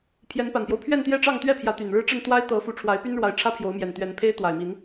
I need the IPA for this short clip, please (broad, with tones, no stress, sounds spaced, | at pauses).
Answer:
pʰ j ɛ˨˦ n p a˨˩ n p j o˦ ʊ̯ pʰ ɥ ɛ˥˨ n t̪ j ɛ˥˨ ʈ͡ʂ ɑ˥˨ ŋ t̪ ɥ ɛ˥˨ pʰ j ä˨˦ t̪ y˨˩ n ɻ ɻ̩˦ ʈ͡ʂ ə˥˨ n t̪ w a˦ ɪ̯ t̪ ɤ˨˦ f u˨˦ ʈ͡ʂʰ w a˨˦ ɪ̯ p y˦ n ɻ w a˨˦ ɪ̯ ʈ͡ʂʰ ä˦ pʰ j o˨˦ ʊ̯ m j ɛ˨˩ n t̪ ɥ ɛ˨˦ n pʰ e˦ ɪ̯ t̪ w a˨˩ ɪ̯ m i˨˦ n